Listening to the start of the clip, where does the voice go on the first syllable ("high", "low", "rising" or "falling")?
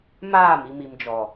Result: falling